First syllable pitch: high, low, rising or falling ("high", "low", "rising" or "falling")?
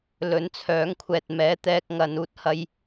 rising